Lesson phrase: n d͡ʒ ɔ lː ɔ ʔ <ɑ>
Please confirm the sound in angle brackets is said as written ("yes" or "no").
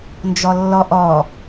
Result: no